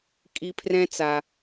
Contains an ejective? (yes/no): yes